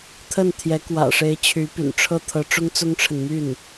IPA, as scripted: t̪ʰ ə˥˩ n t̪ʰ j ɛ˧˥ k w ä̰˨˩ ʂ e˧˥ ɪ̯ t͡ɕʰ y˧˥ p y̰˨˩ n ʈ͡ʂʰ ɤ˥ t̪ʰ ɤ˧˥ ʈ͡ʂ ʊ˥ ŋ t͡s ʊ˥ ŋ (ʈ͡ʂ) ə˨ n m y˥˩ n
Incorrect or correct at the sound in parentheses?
incorrect: ʈ͡ʂʰ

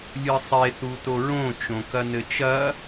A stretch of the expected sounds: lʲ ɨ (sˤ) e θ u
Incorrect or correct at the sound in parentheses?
correct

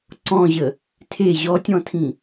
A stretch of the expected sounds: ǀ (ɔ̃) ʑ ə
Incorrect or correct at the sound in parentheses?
correct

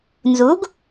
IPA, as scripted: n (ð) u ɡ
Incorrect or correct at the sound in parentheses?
incorrect: z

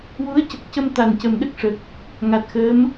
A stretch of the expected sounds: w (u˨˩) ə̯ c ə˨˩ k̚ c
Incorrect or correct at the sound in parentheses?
incorrect: u˧˥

